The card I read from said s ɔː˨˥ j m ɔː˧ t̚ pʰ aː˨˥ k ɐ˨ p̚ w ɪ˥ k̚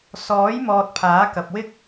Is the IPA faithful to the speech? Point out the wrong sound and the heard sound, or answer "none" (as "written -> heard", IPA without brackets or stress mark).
none